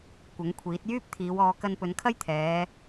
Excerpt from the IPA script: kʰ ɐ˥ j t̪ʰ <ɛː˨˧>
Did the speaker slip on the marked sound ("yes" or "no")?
no